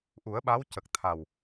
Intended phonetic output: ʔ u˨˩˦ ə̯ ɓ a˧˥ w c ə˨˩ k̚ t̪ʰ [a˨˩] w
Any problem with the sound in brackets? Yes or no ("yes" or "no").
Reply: no